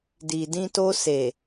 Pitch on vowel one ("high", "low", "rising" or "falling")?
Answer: low